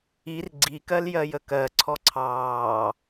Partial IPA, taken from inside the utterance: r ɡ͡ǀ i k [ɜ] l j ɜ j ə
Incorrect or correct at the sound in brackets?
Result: correct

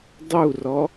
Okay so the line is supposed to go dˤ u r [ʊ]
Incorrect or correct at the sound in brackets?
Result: incorrect: ɔ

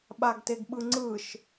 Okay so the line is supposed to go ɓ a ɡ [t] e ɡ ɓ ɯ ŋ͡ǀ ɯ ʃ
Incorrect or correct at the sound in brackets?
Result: correct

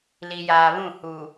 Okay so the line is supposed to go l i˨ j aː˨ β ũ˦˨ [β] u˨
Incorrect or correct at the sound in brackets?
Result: incorrect: h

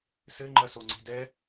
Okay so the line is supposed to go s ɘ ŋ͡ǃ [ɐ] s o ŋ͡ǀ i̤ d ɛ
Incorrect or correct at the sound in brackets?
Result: correct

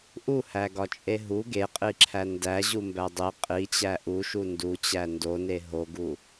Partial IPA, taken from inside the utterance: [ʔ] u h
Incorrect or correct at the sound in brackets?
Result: correct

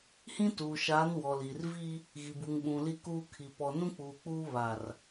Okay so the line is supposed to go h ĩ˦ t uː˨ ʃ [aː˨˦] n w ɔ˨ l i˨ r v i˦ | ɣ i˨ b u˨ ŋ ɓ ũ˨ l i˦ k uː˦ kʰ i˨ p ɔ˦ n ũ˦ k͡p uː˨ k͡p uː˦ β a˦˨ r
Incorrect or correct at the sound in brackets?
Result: correct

